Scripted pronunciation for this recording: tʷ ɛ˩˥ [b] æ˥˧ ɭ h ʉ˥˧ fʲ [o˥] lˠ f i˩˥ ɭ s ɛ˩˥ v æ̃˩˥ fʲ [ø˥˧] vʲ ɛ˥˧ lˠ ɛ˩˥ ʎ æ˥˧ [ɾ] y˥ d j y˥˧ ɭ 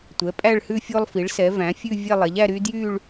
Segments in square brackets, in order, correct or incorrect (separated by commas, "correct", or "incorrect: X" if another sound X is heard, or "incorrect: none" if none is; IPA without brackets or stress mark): incorrect: pʼ, correct, incorrect: ʉ˥˧, correct